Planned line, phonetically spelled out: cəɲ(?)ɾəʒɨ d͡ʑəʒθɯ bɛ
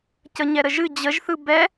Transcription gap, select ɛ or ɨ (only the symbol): ɛ